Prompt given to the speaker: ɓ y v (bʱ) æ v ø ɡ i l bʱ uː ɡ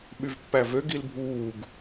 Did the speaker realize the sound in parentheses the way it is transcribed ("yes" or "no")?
no